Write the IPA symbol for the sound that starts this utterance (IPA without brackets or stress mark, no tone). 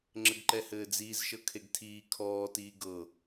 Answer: ŋ͡ǁ